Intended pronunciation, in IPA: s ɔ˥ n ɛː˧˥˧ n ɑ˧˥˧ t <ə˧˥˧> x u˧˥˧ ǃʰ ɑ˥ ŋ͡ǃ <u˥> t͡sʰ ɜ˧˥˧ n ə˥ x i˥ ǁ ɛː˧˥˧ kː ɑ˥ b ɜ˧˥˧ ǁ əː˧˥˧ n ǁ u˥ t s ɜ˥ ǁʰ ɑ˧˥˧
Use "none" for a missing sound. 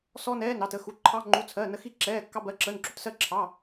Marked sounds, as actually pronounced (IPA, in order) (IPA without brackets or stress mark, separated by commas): ə˧˥˧, u˧˥˧